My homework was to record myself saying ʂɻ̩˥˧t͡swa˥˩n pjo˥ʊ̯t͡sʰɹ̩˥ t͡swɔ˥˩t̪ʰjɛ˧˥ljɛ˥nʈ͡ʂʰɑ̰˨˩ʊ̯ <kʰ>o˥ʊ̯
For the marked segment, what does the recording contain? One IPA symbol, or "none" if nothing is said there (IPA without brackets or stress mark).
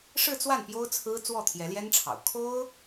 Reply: kʰ